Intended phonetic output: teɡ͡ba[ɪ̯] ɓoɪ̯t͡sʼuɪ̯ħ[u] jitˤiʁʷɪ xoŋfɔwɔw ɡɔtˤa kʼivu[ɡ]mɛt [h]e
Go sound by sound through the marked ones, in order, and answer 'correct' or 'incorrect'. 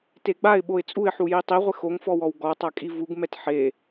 correct, correct, correct, incorrect

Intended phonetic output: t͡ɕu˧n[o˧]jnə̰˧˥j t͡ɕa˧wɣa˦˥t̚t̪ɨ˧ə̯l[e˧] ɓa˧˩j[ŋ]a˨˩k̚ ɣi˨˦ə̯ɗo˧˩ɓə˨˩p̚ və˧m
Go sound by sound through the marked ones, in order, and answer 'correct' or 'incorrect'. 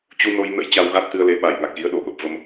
correct, correct, correct

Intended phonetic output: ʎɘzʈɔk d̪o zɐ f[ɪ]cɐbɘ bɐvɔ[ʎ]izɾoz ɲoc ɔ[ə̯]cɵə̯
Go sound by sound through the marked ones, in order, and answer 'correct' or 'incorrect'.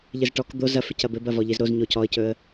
correct, correct, correct

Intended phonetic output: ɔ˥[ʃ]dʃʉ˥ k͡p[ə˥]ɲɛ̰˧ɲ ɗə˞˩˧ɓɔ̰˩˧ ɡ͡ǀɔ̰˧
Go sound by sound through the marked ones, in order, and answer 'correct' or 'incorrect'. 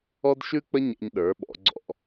incorrect, correct

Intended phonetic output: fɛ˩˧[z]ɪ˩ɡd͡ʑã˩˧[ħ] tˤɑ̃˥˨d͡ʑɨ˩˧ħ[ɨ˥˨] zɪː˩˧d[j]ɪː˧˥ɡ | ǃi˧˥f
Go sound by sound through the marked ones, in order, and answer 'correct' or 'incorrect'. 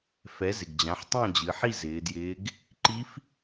correct, correct, incorrect, correct

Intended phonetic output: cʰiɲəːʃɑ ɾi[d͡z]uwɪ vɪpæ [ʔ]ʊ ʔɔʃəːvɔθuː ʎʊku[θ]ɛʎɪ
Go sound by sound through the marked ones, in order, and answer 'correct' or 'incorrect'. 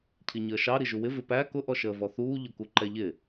incorrect, incorrect, incorrect

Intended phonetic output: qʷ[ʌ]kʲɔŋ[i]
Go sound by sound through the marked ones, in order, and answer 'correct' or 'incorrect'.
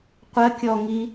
incorrect, correct

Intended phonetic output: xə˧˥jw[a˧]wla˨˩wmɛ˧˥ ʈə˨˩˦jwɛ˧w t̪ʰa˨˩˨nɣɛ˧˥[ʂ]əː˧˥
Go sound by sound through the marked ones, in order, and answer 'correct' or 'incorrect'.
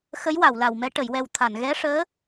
incorrect, correct

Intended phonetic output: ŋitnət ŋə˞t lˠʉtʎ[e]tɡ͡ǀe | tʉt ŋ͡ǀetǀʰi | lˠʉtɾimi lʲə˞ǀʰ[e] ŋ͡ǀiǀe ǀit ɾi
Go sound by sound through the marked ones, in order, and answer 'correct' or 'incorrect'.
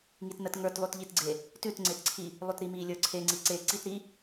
incorrect, correct

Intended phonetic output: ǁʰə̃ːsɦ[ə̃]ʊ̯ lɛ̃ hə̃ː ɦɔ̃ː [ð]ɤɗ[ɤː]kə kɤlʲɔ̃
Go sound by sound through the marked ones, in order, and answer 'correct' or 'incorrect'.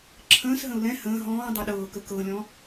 correct, incorrect, correct

